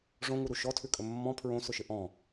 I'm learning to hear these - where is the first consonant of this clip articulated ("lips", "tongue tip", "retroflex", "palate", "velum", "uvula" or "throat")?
retroflex